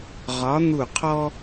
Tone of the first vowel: rising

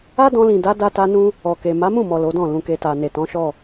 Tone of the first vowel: high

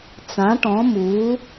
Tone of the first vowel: rising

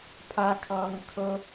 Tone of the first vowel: high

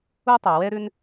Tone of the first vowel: high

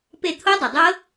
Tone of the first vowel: falling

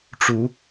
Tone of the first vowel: rising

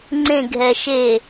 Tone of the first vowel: falling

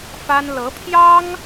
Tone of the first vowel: high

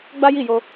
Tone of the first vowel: high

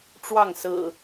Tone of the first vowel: falling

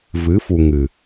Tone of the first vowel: rising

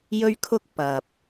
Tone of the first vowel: high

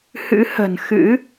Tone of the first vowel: rising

